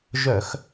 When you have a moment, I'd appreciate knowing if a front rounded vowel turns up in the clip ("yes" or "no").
yes